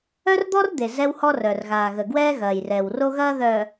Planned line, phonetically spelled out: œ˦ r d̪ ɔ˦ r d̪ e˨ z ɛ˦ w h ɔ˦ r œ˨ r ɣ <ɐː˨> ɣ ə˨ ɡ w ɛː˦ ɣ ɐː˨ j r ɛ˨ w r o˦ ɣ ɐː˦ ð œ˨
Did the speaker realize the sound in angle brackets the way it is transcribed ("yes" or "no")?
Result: no